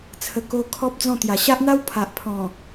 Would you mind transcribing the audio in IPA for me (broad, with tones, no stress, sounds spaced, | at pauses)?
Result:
t͡sʰ ə˧ k o˦ kʰ ɔ˦ p̚ d͡z ɔ̃˥˧ t̪ j a˨˩ ɕ a˦ ʔ n̪ a˦ w pʰ a˨ ʔ pʰ ɔ̃˨˩